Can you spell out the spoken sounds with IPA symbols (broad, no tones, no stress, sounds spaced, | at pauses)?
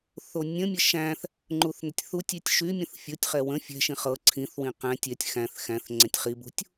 θ o nʲ ə̃ mʲ ə ʃ æ̃ θ | ŋ͡ǃ u θ n ə tʲ θ u tʲ y tʲ ʃ y mʲ ə̃ θ fʲ o tʲ χ ɛ w ə̃ fʲ ɛ̤ ʃ ĩ χ ɤ ǀʰ ĩ θ w ĩ q æ̃ tʲ ɛ tʲ x æ̃ θ x æ̃ θ ŋ͡ǀ ɛ̃ tʲ χ i b ṳ tʲ